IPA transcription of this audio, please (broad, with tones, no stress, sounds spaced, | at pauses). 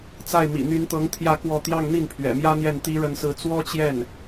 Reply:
t͡s a˥˩ ɪ̯ m ḭ˨˩ n̪ y˧˥ n t̪ ɤ˧˥ ŋ t̪ʰ j ä˥˧ k w ɔ˥˧ t̪ j ɑ˥˧ ŋ n̪ i˥˩ n pʰ ɥ ɛ̰˨˩ m j ä˥ n̪ j ɛ˥˩ n t̪ i˥ ɻ ə˥˧ n s ɹ̩˥˩ t͡s w ɔ˥ t͡ɕ j ɛ˥˩ n